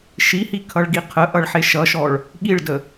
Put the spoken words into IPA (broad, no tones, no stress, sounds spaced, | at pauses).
ʃ i h i kʰ ʌ ɭ ɡ i qʰ ə ʔ ʌ ɭ ħ e ʃ ʌ ʃ ɔ ɭ | ɠ i ɭ d ə